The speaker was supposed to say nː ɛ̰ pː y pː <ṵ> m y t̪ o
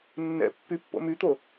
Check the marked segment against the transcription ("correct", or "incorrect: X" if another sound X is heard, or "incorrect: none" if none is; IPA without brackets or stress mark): incorrect: o̰